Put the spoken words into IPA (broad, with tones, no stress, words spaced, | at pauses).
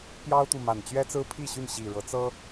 pjɑ˦ʊ̯t̪u˨ma˨˩n t͡ɕɥɛ˦t͡sɹ̩˦pʰi˥˨ɕy˥˨n ɕi˨˩ɻɤ˨˦ t͡sɤ˦